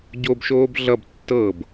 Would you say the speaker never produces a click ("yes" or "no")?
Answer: yes